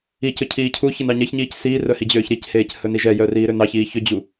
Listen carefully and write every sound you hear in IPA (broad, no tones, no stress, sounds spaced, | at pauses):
i c ɵ cʰ iː cʰ u ç ɛ n ɑ ɲ ɛ ç ɲ iː c s iː r œ h i d͡ʑ øː ç ɾ i c h eː c h ɵ n i ʒ ɛ j œ r iː ɾ ø n ɑ ç iː ç ɵ d͡ʑ u